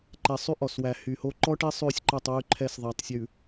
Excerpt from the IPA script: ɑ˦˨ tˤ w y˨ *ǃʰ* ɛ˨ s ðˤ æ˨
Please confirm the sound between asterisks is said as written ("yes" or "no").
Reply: yes